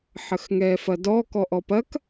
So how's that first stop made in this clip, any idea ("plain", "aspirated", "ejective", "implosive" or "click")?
plain